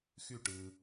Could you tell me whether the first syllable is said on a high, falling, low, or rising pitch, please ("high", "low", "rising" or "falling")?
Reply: falling